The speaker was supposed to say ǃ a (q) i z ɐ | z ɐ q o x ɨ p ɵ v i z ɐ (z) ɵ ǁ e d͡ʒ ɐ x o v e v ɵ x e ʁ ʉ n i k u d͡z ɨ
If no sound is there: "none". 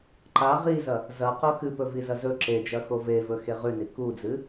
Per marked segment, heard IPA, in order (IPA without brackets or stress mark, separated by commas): ʁ, z